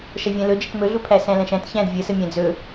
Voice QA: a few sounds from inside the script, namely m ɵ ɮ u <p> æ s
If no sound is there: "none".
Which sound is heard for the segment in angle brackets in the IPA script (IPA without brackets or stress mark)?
pʰ